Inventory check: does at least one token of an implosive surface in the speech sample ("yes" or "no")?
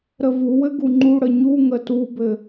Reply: no